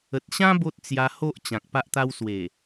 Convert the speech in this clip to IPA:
ə˨ t̚ ɕ ã˦ b o˦ t̚ t͡s j a˧ h o˦ ʔ t͡ɕ ã˨ k̚ p a˦ ʔ t̪ a˦ w s w e˨˩

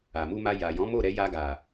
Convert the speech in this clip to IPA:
a˨ m u˧ m a˧ j a˨ j ɔ̃˨˦ m o˦˨ ɾ ɛ˧ j a˧ ɡ a˨

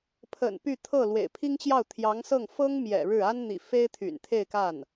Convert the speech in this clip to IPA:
pʰ ə̰˨˩ n p y˥˧ t̪ʰ ɤ˥˩ l w ḛ˨˩ ɪ̯ pʰ i˥ ŋ t͡ɕ j ɑ˥˩ ʊ̯ t̪ʰ j ɑ˧˥ ŋ s ɤ˥˩ ŋ f ɤ˥ ŋ m j ɛ̰˨˩ ɻ ɻ̩˥˩ a˥ n n̪ ḭ˨˩ f e˥ ɪ̯ t̪ʰ y̰˨˩ n t̪ʰ e˥˧ ɪ̯ k a˥˩ n

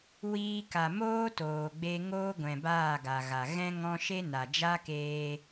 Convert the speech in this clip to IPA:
w iː˧ k a˨ m oː˦ t oː˨ ɡ͡b e˧ ŋ oː˦ ɡʷ ɛ̃˨ b aː˦˨ ɡ a˨ ɣ a˨ ɣ ɛ̃˦ ŋ ɔ̃˦ ʃ e˦ n a˨ d͡ʒ a˦ k eː˧

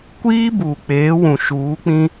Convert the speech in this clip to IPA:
kʷ iː˦ b uː˨ k͡p eː˨˦ w ũ˨ ʃ uː˨˦ k͡p ĩ˦

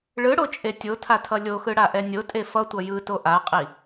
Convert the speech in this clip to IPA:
ɭ ɯ ɽ o t͡ʃʼ e tʲ o tʰ a tʰ ʌ lʲ o x ɯ ɽ a ʔ ɛ nʲ o tʼ e f ʌ tʷ ʌ j ɯ t o ʔ a qʼ i

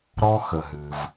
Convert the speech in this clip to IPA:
ɾ ɔ˧ x ə˩ ɦ ɨ˩ v

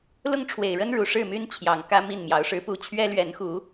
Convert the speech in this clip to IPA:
l ʊ˥˨ ŋ ʈ͡ʂʰ w e˨˩ ɪ̯ ɻ ə˦ n ɻ u˨˩ ʂ ɻ̩˥˨ m y˦ n t͡ɕʰ j ɑ˨˩ ŋ k ä˦ m i˥˨ n m j ɑ˨˦ ʊ̯ ʂ ɻ̩˦ p u˥˨ t͡ɕʰ ɥ ɛ˦ l ɥ ɛ˨˦ n x u˨˦

